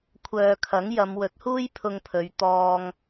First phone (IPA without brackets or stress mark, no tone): kʷʰ